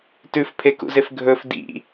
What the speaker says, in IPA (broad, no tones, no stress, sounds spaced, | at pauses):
t ʉ f pʰ e k ṵ z e f ɡʱ ɵ f d ḭ